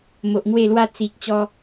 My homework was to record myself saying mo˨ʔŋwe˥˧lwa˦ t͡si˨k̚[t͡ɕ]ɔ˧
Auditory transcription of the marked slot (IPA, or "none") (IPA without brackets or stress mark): t͡ɕ